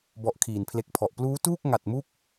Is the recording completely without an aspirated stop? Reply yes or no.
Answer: no